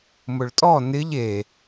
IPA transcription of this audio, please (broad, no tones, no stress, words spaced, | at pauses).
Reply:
mʊɭtʼɔ nɪʎ e